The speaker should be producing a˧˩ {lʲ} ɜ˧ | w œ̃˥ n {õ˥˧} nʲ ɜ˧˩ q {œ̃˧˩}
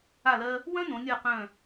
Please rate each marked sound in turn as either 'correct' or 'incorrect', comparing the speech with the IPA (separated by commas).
incorrect, incorrect, correct